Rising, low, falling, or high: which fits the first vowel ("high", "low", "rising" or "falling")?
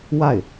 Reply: falling